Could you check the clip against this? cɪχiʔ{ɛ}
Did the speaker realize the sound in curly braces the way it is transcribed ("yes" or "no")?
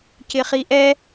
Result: yes